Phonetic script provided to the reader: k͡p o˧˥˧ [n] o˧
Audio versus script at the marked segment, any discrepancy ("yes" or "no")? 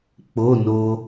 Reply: no